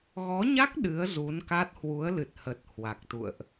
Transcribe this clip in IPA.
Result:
ɣ ɔ˨˦ ɲ a˦˥ k̚ ɗ ɨ˨˦ ə̯ z u˨˦ n k a˦˥ t̚ h w u˨˦ ə̯ l ɨ˨˩ t̚ h ə˨˩ t̚ h w a˨˩ k̚ t̪ ṵ˧˨ ə̯ ʔ

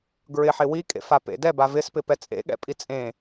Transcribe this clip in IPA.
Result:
ɡ ɹ ɪ ħ ɪ w i kʼ ḛ f a p ḛ d ɛ b a v ɪ s p ɪ p ɛ t͡sʼ ḛ ɠ ɛ̰ pʼ i t͡sʼ ẽ

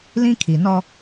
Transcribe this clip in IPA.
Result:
l ĩ˦ kʰ i˨ n ɔ˦

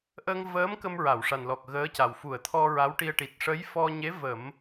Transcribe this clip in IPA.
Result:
ʔ ə˧ ŋ v əː˧˥ m k ə˧ m ɹ a˨˩˨ w ʂ a˨˩ n l ɔ˨˩ k̚ ɣ əː˧˥ c a˨˩ w f u˨˩˨ ə̯ t̪ʰ ɔ˧ ɹ a˧˥ w ʈ i˧ ə̯ ʈ i˨˩ t̚ ʂ ə˧˥ j f ɔ˧ ɲ e˧˥ v ə˨˩˦ m

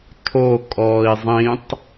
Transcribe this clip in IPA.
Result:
tʰ o kʼ ɔː i̯ zˤ ĩ tˤ

